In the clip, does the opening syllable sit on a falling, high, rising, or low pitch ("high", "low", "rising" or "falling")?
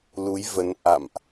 rising